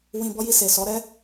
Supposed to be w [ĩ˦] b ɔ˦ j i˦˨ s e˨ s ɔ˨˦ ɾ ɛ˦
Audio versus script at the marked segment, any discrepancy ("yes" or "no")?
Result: yes